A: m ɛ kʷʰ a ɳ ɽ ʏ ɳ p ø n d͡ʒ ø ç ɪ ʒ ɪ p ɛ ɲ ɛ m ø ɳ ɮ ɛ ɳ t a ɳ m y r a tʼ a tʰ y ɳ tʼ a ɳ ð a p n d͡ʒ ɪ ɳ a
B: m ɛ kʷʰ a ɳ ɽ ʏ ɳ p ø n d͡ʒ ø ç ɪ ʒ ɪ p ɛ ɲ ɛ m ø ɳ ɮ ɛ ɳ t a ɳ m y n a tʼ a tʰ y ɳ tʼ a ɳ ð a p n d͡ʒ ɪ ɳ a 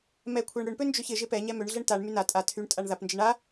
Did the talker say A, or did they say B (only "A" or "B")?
B